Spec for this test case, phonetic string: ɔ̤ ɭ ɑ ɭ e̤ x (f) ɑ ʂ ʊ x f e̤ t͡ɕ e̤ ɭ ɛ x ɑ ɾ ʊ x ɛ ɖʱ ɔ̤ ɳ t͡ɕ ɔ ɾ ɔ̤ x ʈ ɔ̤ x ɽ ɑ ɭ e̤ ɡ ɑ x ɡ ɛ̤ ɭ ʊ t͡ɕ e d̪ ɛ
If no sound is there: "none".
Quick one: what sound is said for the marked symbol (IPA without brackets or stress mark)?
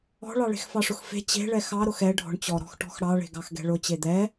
f